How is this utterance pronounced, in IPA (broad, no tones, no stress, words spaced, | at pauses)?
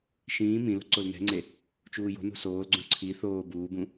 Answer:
ʃĩː mĩ lo̤ǀolnɛ̤ŋ͡ǀe | t͡ʃuːjo̤nṳ soːlɡ͡ǀũ ǀʰi θoː buːbũ